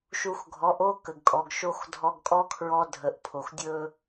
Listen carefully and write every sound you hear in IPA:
ʃu˧xɡʱɔ˨˦ʔo˦ kə˨ɡkʼɔ˨ɡʃo˦x dʱɔ˧ɡkʼɔ˦kʰɹɔ˧ dʱə˨ʔpʰo˨x dʲɵ˦

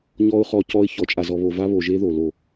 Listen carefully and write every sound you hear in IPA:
ɲɔ˦ʊ̯χɔ˦ cɔ˦ɪ̯ çɔ˨t͡ʃʼa˨zɔ˨ βo˨va˦βo˨ʒe˦ ðo˨lo˦˨

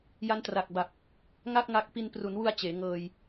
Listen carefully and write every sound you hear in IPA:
ja˦˥ntra˨˩k̚ba˨˩p̚ | ŋa˥˩k̚ŋa˦˥k̚ pi˧n pru˩˦nwu˧a̯ t͡ɕeː˩˦ŋɤː˧j

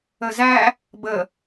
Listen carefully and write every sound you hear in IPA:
əzæ | bə

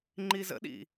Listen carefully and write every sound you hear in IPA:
ŋ͡ǃizə̰ɗḭ

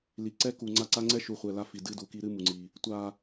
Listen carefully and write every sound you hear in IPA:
li˨ǀɛ˦ ku˨ŋ͡ǀa˦˨ǀa˦ ŋ͡ǀɛ˦ʃu˨χʷɛ˨ la˦fi˨ dɨ˦du˨ki˦ ɾɨ˦ mu˨ŋ͡ǀi˨ | tʷa˨

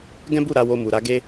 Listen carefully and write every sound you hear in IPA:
ɡɛ̃˦bu˦˨ ɾa˧wo˧mu˨ɾa˨˦ ɡe˦

